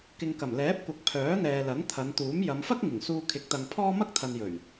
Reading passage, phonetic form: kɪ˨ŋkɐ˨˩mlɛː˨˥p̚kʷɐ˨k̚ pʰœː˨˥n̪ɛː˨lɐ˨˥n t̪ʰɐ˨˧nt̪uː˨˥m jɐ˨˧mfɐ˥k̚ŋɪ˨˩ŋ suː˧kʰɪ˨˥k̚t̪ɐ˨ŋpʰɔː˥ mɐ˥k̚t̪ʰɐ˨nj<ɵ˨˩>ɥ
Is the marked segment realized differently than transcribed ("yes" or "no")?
no